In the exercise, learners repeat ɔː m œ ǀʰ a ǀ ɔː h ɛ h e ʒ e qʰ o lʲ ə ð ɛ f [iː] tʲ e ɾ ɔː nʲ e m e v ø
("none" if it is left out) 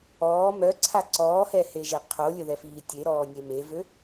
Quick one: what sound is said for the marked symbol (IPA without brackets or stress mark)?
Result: iː